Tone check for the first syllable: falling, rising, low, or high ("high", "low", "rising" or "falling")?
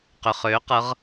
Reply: low